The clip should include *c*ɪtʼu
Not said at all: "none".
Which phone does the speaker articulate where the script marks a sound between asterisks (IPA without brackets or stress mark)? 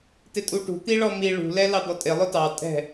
t